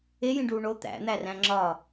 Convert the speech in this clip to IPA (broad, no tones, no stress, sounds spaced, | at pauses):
e j ĩ ɖ uː ɳ o t̪ æ̰ n̪ æ r æ̃ ŋ͡ǁ ɒ